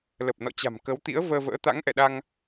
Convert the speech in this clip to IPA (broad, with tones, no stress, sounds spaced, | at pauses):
l ə˨˩ p̚ n ɔ̰˧˨ t͡ɕ a̤˨˩ m k ə˨˦ w t̪ ḭ˧˥ ə̯ v əː˧ v ə̰ː˧˥ t̪ a̰˧˥ ŋ ʔ ɛ̰˧˨ ɗ a˧ ŋ